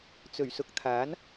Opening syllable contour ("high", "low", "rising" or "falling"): low